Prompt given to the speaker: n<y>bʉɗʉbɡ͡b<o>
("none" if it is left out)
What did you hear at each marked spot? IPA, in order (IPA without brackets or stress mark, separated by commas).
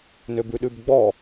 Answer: ø, ɔ